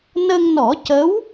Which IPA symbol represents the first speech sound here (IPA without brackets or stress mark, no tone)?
n